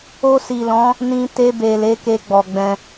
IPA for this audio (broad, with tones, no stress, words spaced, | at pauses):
o˧si˨lɔ̃˨˦ | nĩ˧ te˧be˨ le˨˦ke˧ɡ͡bɔ˨ɡ͡bɛ̃˧